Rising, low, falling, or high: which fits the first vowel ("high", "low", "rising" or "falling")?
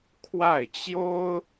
falling